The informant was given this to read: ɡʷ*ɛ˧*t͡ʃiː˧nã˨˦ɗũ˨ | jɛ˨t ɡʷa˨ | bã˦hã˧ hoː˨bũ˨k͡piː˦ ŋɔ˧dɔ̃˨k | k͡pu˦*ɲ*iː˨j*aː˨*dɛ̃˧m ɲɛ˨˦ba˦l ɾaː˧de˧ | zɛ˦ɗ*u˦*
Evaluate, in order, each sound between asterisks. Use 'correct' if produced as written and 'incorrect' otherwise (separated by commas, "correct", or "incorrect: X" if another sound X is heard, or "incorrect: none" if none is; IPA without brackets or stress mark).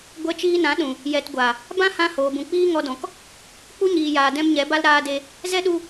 correct, correct, correct, incorrect: u˧